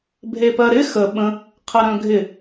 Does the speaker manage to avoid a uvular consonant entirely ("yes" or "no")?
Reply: no